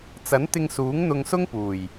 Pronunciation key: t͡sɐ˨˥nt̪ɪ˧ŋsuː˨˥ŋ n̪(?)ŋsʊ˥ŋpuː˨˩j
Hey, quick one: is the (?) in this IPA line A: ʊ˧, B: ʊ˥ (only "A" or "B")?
A